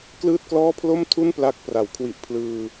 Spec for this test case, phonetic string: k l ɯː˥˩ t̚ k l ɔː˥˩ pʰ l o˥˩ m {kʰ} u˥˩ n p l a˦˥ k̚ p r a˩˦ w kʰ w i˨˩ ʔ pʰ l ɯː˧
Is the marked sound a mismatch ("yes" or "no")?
yes